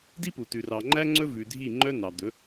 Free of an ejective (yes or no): yes